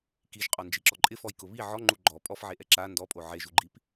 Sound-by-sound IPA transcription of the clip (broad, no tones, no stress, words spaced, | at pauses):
kiʒqʼɔnd͡ʒiǁɔ ǃʼɪfɔjkʊ βi ʕɔŋ͡ǃu ɡ͡ǃɔ pʼɔfʕeʔɛ ǁa ndɔpʼo ʕeʒuɡ͡ǃip